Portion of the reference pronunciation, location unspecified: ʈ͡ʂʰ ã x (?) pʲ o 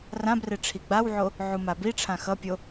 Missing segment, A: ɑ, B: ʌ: B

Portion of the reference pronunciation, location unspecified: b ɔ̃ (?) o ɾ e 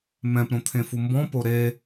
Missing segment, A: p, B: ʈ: A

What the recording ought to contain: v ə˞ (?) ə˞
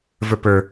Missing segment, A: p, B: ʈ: A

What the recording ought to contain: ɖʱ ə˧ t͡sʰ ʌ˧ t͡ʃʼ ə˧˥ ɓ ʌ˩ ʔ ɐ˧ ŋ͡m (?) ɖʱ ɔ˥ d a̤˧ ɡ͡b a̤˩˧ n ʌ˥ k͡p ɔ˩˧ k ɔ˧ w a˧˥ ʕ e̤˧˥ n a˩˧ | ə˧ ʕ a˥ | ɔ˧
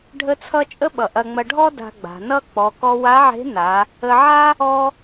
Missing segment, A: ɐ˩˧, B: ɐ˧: B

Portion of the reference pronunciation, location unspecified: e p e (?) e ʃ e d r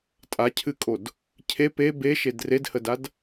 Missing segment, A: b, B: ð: A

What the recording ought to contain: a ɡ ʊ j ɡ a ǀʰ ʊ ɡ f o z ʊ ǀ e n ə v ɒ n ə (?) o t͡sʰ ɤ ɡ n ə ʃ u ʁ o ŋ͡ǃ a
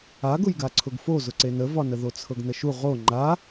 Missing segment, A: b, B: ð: B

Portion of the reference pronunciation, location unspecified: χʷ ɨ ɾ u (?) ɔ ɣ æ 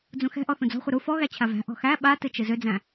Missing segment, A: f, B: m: A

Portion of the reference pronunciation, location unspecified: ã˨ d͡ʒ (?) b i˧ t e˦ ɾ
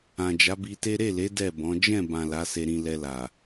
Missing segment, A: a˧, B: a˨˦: B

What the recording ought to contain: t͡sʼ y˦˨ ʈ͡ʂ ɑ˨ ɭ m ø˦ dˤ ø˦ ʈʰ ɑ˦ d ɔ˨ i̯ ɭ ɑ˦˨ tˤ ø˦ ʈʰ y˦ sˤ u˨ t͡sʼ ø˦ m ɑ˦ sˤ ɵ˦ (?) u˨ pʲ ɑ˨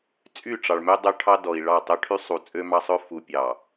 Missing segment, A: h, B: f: B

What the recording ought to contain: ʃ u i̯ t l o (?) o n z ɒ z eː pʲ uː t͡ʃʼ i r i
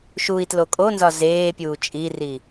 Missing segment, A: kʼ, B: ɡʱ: A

